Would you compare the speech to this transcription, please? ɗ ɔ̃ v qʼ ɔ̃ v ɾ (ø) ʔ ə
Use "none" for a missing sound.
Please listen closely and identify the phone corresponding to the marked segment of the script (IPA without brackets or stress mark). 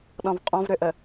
ø